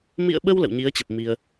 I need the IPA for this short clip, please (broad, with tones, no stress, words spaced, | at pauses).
mḭ˧˨ə̯ɓə˧w lə̰˧˨wɲi˨˦ə̯t͡ɕə˨˩p̚ mi˧ə̯